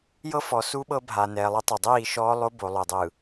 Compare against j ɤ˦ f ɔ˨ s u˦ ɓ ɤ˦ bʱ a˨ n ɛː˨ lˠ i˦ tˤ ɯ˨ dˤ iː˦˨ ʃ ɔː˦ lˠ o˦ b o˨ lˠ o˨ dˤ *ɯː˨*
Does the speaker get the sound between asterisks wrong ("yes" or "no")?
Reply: no